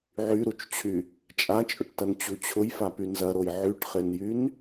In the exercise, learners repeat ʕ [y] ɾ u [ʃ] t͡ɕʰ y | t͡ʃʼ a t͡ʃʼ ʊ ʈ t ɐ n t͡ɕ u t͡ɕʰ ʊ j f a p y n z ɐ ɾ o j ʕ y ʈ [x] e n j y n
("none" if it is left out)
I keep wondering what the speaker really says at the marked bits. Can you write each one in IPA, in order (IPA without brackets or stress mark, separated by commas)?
y, t͡ʃ, χ